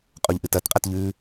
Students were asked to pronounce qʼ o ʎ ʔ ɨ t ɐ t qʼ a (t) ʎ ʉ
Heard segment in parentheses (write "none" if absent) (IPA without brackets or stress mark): t